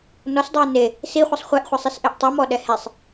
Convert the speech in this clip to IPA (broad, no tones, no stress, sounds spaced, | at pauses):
n ɔ s dˤ oː n e | s i χʷ i sˤ χʷ ɛ ʔ χʷ a sˤ i s ʔ e ʔ tˤ i m ɔ ɗ ɛ h e sˤ